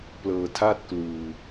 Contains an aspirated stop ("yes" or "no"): yes